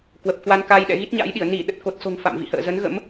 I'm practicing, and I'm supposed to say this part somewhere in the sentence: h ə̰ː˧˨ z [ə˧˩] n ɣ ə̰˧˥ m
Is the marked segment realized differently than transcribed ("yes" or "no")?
yes